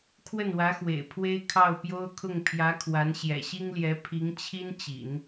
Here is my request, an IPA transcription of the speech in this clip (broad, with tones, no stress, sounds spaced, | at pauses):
kʰ w ə˥˩ n w ä˧˥ x w ḛ˨˩ ɪ̯ pʰ w e˥ ɪ̯ kʰ ɑ˥˩ ʊ̯ p j o˥ ʊ̯ kʰ ʊ˥˩ ŋ pʰ j ä˧˥ kʰ w a˧˥ n ɕ j ɛ̰˨˩ ɕ i˥ ŋ l j ɛ˧˥ pʰ i˧˥ ŋ t͡ɕʰ i˥ n t͡ɕ ḭ˨˩˦ n